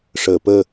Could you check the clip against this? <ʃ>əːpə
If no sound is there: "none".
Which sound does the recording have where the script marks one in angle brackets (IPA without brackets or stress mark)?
ʂ